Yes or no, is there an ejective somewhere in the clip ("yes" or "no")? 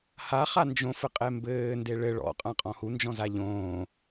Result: yes